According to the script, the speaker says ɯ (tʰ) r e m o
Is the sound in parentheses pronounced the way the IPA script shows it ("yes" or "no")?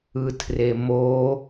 yes